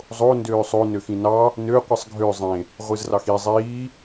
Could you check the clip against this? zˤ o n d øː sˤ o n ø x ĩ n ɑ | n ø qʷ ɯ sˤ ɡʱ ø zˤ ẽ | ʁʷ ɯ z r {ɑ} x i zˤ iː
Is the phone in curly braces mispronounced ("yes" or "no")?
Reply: no